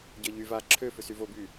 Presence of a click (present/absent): present